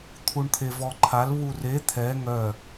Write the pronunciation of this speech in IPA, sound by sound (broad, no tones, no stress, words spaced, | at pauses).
t̪ʰuɳt̪ʰevɔǃʰal βure t̪ʰɛ ŋœ